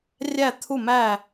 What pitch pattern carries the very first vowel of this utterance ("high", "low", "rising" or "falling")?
falling